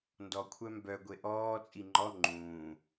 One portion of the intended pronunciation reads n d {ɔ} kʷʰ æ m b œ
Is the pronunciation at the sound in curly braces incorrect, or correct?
correct